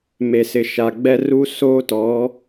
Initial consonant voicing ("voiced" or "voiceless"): voiced